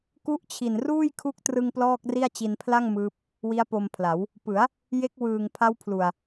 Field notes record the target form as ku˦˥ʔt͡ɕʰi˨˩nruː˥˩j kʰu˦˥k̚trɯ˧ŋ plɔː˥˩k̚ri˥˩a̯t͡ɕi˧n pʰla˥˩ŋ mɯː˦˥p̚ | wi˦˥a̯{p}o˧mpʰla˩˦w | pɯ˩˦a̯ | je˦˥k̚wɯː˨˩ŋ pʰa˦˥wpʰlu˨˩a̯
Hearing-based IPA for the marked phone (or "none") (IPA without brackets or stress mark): p